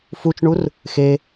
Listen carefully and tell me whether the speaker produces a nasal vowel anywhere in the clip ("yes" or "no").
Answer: no